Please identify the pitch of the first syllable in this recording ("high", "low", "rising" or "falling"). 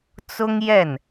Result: high